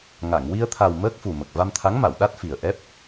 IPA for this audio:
ŋ a˨˩˨ ŋ w i˧ ə̯ t̪ʰ a˨˩ w m əː˦˥ k̚ f u˨˩ m ə˨˩ k̚ v a˧ m t̪ʰ a˧˥ ŋ m a˨˩˨ w ɗ a˦˥ t̚ f i˨˩ ə̯ ʔ ɛ˦˥ p̚

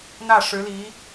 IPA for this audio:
n̪ ä˥˩ ʂ ɻ̩˧˥ l i˧˥

